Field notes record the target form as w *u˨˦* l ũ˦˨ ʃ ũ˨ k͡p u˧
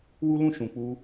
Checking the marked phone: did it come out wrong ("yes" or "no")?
yes